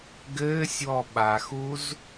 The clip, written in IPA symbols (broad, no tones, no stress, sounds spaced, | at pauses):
ɡ ɘː sʲ w ɔ ɓ a x u z